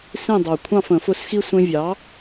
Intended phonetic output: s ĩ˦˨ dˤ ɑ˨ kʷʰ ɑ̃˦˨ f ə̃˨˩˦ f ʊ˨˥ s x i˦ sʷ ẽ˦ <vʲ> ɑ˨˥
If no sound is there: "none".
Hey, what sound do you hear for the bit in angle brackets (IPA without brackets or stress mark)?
vʲ